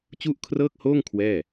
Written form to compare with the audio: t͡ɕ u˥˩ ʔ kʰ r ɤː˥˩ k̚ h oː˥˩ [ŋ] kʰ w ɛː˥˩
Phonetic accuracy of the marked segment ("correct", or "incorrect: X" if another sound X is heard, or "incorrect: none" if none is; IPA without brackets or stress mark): correct